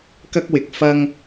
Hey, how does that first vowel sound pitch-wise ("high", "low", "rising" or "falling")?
high